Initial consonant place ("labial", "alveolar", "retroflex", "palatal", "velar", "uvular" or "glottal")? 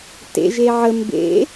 alveolar